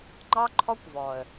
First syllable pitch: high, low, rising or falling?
high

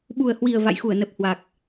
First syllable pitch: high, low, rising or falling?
low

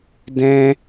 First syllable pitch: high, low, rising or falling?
high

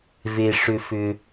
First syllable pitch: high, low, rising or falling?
low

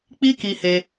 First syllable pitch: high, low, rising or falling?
high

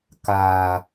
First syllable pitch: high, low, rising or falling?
low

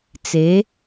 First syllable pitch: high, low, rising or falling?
rising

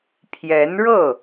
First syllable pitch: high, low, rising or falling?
rising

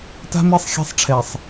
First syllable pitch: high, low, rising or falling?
high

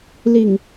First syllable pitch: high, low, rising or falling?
low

